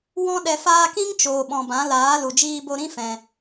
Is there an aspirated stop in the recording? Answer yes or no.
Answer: no